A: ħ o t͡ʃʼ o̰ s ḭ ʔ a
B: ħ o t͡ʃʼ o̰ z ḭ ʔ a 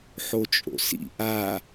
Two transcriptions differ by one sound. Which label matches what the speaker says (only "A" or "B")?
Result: A